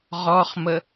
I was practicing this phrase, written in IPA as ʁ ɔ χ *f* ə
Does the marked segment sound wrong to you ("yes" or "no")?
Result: yes